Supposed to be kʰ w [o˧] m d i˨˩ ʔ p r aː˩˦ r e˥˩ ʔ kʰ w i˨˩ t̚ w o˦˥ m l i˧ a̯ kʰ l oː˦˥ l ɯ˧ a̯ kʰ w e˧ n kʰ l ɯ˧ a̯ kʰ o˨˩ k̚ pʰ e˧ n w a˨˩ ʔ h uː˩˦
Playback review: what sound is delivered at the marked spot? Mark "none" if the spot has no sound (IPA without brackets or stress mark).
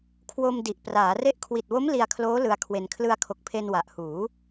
o˧